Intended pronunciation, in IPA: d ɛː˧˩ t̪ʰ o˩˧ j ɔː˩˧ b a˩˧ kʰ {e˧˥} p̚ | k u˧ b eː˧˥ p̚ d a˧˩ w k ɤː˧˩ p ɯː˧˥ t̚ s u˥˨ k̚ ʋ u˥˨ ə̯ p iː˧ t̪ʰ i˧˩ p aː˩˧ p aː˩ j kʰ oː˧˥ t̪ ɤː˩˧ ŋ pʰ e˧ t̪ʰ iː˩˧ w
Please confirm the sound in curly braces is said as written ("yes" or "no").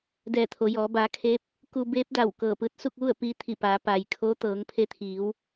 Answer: yes